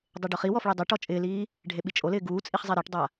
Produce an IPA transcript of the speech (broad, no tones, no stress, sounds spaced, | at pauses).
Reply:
dˤ e ɖ ʊ χ i w ɔ f ɭ e dˤ e ʈ ɔ t͡ʃʼ ɪː l iː | ɖʱ e ɓ i t͡ʃʼ o l ɪː ɡ uː t͡sʼ i χ zˤ e ɾ ɪː ʈ dˤ a